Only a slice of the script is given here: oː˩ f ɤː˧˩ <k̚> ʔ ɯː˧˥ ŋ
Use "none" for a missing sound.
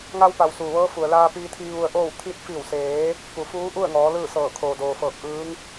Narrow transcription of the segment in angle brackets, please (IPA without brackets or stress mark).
k̚